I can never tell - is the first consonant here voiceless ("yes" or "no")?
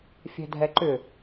yes